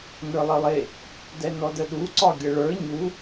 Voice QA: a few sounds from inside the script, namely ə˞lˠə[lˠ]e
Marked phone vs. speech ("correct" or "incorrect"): correct